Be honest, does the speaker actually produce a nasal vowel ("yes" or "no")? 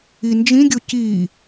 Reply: yes